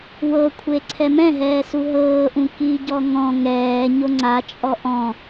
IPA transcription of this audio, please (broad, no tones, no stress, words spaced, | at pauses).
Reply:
wɤkʷʰe ǀʰɛmɛ̃ɦɛː suɦɤːʔũ kiɟɔ ŋɔ̃ ŋɛːɲo ŋ͡ǀat͡ʃʼɔ ʔɔ̃